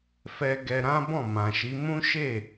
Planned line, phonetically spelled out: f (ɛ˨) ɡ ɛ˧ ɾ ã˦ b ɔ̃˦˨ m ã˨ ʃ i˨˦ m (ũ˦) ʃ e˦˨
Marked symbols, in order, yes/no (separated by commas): no, yes